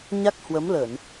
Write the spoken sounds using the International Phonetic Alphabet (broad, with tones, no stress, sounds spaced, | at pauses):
ɲ a˦˥ k̚ h w ə˨˦ m l ə˧˩˨ n